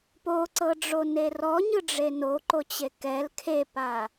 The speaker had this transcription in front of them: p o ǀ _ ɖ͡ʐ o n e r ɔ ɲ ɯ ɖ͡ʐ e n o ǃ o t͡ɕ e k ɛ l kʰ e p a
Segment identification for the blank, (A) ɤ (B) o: A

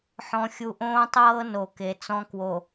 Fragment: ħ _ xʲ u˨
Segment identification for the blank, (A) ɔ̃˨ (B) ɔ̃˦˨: A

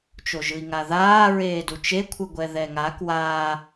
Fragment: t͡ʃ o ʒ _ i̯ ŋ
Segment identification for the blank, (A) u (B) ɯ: B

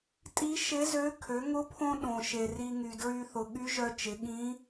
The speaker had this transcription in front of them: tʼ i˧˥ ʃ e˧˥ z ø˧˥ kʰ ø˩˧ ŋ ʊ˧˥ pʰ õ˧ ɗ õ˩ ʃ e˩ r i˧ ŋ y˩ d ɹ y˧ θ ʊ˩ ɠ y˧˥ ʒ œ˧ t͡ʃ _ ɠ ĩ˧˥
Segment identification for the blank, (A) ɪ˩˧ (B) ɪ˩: A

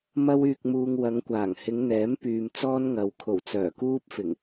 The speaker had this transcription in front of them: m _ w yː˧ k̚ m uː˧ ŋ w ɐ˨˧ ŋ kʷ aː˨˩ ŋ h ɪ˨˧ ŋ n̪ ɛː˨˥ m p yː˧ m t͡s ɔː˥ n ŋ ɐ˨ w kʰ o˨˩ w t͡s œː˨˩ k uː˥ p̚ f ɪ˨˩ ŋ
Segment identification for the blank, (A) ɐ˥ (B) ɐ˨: A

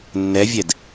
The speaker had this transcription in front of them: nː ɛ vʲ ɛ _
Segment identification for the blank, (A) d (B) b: A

